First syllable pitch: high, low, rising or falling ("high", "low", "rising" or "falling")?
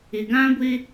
low